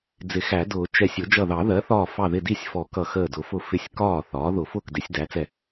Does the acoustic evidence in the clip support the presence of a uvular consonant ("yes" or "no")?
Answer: no